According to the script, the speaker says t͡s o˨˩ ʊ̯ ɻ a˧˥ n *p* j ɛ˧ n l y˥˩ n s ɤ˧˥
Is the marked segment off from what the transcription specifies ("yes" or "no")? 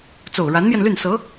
yes